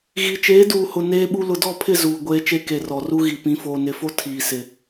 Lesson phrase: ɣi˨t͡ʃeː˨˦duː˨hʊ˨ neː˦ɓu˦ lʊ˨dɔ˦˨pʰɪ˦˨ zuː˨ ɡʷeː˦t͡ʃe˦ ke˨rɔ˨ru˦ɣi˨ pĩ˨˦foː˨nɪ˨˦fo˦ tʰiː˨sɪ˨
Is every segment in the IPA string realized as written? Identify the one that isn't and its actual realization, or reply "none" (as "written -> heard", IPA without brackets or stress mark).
none